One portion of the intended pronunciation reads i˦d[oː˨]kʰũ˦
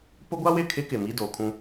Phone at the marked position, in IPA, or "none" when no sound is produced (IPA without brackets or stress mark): oː˨